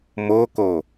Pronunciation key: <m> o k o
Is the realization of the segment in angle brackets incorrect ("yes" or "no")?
no